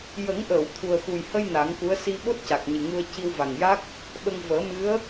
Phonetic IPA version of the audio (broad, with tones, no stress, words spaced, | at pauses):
jə˨˩˦ŋʔəː˨˩˨w t̪ʰu˨˩ə̯xu˨˩jhə˧j na˨˩˦ŋku˧˥ə̯ si˧ ɓo˦˥t̚ca˨˩k̚ ɲɨ˨˩ŋu˧ə̯ ci˧w va˨˩ŋja˦˥k̚ | ɓə˧ŋ vəː˨˩˦mɨ˧˥ə̯